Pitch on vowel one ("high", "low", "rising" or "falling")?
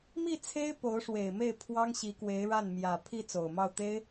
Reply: falling